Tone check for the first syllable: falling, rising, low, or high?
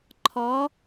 rising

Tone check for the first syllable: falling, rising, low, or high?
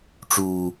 high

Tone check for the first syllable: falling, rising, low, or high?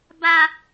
high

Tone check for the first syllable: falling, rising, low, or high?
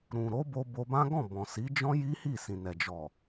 low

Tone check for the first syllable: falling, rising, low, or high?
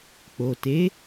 low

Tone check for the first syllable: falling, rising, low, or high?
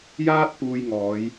high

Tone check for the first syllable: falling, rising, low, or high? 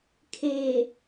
low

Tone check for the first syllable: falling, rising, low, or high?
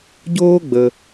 high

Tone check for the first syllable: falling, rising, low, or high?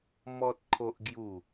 high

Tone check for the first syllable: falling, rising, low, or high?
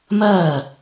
falling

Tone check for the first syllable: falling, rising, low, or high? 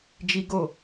high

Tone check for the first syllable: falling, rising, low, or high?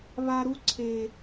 low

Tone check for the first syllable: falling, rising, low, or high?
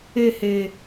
falling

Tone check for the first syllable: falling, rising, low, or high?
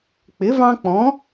rising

